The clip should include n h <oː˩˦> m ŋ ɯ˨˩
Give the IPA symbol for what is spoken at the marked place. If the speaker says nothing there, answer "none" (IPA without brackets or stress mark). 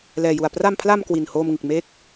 oː˧